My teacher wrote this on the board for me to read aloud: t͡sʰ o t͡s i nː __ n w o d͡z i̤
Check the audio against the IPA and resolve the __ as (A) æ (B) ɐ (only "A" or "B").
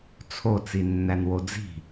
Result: A